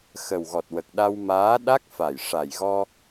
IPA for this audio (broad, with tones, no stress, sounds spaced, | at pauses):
x ə˨˩ w ɣ ɔ˨˩ t̚ w ə˨˩ k̚ ɗ a˧ w m aː˧˥ ɗ a˦˥ k̚ f a˨˩ j ʂ a˨˩ j ɣ ɔ˧